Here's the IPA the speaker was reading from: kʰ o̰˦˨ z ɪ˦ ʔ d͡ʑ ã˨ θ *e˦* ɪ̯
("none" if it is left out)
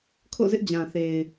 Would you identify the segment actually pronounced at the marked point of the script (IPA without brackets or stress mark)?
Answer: e˨